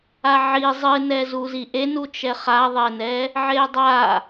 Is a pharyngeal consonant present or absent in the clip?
present